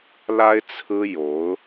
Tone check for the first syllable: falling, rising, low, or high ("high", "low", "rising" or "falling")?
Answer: high